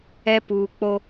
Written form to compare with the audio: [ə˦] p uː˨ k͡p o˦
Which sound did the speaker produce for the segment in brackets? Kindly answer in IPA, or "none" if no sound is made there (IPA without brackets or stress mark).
ɛ˦